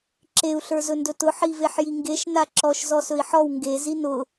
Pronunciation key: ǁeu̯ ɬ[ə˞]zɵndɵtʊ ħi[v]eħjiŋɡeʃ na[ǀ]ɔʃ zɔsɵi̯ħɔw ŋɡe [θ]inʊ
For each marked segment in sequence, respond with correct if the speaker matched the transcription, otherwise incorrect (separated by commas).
correct, correct, incorrect, incorrect